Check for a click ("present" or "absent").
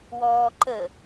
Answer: present